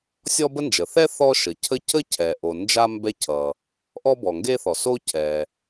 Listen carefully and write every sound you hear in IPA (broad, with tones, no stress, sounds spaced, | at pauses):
sʲ ɔ˥ b ə˥ n d͡ʒ ə˩ θ ɛ˥ θ ɔ˥ ʃ ə˩ cʰ ə˥ c ə˥ cʰ ɛ˩ ʔ o˩ n d͡ʒ a˥ m b ɛ˥ cʰ ʌ˩ | ʔ ɔ˥ b ɔ˩ ŋ ɡ e˥ θ ɔ˩ s o˥ cʰ ɛ˩